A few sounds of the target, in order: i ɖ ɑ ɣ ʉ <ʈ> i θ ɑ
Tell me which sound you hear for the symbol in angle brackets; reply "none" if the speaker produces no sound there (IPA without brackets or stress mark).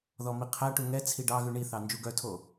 ɳ